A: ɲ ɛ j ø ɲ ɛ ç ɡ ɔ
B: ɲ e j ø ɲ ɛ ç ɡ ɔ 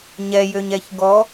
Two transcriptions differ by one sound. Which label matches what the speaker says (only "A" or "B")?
A